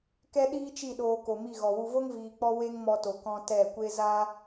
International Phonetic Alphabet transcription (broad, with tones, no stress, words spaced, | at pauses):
kɛ˦ ɗiː˦t͡ʃi˦˨ ɗoː˧ko˨mi˦˨ ɣɔ˨wu˧vo˦ŋ viː˧k͡pɔ˦ we˦ŋmɔ˧to˨ kɔ̃˧ tɛ˦˨kʷe˦ za˦